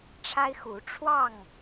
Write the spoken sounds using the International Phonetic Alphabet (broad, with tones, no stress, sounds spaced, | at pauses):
ʈ͡ʂʰ a˦ ɪ̯ x u˨˦ ʈ͡ʂʰ w ɑ˥˨ ŋ